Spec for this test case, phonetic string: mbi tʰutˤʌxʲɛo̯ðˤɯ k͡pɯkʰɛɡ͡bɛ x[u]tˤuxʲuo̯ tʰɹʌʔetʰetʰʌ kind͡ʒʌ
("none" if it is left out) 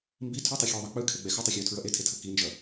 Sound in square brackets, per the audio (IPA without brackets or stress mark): u